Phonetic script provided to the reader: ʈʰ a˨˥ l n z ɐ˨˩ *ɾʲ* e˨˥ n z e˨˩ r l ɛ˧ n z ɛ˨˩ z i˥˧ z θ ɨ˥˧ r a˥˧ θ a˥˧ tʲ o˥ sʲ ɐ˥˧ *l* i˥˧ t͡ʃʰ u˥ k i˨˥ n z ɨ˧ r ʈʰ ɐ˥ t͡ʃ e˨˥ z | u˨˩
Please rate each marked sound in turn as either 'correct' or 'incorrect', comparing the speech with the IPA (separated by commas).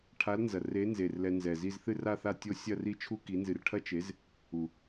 incorrect, incorrect